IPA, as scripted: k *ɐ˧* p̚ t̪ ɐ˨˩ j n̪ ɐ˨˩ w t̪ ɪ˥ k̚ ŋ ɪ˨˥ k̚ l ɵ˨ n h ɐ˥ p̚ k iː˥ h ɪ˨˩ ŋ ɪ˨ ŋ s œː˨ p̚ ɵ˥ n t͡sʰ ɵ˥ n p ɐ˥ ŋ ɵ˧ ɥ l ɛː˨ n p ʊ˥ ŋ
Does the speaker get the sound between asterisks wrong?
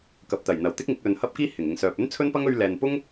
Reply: yes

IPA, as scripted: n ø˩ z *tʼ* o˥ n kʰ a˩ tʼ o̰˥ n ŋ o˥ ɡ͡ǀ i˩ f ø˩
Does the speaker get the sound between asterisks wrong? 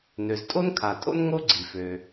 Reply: no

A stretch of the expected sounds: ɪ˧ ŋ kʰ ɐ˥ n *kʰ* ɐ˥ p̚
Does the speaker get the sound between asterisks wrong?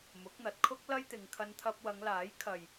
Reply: yes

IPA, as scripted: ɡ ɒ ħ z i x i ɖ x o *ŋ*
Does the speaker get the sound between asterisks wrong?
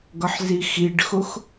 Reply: yes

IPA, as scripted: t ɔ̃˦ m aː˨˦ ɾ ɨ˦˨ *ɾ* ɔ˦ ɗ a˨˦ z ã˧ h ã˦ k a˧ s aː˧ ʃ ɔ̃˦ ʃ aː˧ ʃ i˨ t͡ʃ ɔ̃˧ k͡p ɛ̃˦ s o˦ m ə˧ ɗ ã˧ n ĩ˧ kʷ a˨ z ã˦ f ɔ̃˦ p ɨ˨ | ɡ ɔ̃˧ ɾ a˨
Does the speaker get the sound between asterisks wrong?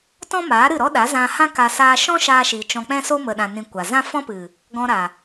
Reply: no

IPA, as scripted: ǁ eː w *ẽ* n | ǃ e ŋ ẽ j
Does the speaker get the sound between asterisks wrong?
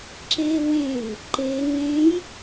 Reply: no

